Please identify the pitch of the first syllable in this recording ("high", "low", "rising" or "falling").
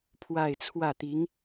falling